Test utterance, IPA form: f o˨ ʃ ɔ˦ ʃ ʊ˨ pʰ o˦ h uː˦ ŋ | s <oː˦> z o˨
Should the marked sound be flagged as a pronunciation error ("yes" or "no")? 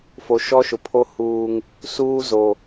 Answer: yes